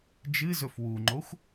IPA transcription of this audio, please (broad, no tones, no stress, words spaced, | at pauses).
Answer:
d͡ʒɨzɵf wuŋ͡ǃoxʷ